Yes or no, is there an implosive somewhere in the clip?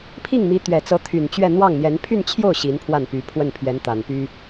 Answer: no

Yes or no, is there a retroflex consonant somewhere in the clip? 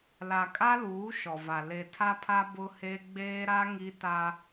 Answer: no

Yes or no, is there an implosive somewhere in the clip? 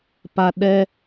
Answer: yes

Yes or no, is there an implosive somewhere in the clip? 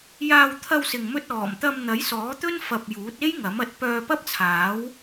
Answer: no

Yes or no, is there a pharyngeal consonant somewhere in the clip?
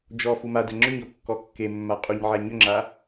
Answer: yes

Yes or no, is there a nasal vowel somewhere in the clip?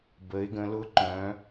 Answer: yes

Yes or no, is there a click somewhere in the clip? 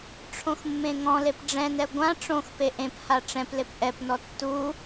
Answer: no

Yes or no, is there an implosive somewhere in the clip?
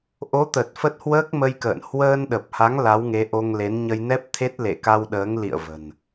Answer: yes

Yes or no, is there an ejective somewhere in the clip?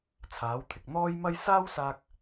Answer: no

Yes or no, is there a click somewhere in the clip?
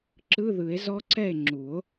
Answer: yes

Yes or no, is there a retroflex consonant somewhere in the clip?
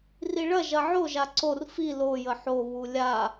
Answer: yes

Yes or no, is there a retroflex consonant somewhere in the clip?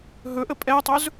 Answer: no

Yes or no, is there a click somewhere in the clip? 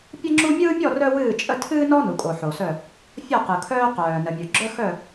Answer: yes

